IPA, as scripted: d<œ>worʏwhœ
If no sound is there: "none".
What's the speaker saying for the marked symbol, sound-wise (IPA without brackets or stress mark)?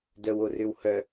œ